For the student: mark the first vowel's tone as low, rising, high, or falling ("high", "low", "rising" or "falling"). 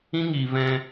high